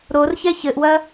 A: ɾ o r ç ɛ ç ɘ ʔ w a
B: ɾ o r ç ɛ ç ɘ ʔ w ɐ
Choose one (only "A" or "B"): B